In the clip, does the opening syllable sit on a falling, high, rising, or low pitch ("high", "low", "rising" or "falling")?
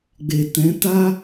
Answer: low